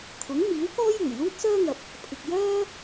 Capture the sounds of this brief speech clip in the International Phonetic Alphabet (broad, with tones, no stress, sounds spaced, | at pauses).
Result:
t̪ʰ ʊ˨˥ ŋ m iː˨˥ w k ɔː˥ j uː˨˩ j l uː˥ t̚ s œː˥ ŋ ɐ˨ p̚ | pʰ ɪ˨ k̚ j œː˥